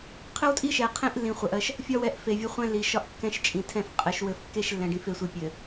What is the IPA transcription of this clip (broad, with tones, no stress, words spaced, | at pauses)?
qʰɘ˦wtʼi˦ʃɛ˨qʰẽ˦ʔ lːĩ˨χʷɜ˨ʔɜ˦ʃ | fʲɒ˦wɛ˨˦ʔ fe˨vʲɘ˦ χʷɛ̃˦lːi˨ʃɒ˦ʔ kːɛ̃˦ʃt͡ʃʼĩ˨tʰɛ̃˦˨f qʼɘ˨ʃwɘ˨fkːe˦ʃ lːɛ̃˨ɖĩ˨fe˨sʷi˨ pʲɘ˨